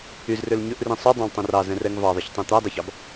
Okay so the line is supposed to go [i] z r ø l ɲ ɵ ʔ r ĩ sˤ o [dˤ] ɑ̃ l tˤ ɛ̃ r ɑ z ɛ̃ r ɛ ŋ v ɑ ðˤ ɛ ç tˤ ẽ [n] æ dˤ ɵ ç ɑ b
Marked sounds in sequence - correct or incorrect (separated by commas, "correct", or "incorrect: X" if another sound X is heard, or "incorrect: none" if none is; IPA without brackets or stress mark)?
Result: incorrect: y, correct, incorrect: t̪